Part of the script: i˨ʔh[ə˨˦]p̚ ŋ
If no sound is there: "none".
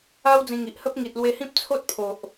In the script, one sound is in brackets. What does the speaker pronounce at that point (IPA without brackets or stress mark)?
ə˦